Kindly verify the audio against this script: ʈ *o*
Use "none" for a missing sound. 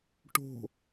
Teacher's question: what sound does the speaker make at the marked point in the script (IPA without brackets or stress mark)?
o̤